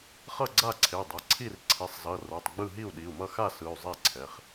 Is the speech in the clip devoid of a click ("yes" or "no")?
no